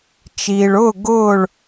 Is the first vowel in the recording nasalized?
no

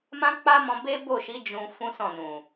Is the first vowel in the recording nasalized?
yes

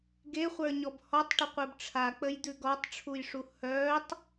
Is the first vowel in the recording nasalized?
no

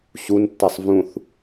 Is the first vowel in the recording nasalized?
no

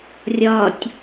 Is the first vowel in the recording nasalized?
no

